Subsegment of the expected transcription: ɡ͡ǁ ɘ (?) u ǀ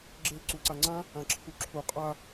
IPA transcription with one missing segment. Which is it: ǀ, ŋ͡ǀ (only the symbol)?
ǀ